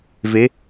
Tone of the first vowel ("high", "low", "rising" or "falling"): rising